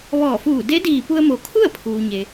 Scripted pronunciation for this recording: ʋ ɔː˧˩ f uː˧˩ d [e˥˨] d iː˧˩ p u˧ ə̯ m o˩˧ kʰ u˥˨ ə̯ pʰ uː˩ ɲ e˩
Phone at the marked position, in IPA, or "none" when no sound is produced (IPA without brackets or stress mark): e˧˥